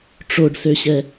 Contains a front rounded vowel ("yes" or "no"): yes